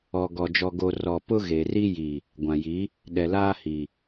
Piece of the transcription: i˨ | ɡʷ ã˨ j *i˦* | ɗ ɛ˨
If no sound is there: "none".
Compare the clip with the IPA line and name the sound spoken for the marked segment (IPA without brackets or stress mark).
i˨˦